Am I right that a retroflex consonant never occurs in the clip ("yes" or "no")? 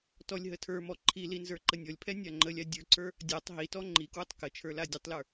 yes